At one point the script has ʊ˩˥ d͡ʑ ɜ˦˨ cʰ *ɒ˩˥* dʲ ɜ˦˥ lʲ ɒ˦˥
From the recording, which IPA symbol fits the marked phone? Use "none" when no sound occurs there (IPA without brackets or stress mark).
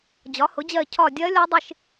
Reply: ɒ˦˨